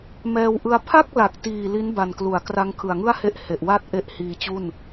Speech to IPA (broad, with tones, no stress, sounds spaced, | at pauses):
m ɛː˧ w ʔ ɯ˧ a̯ pʰ a˥˩ k̚ l a˨˩ k̚ t iː˨˩ l i˦˥ n b a˨˩ n k l u˩˦ a̯ k r a˧ ŋ kʰ ɯ˨˩ a̯ ŋ ɯ˥˩ a̯ h e˦˥ ʔ h e˨˩ ʔ w a˥˩ t̚ ʔ e˦˥ ʔ h iː˧ t͡ɕ u˥˩ n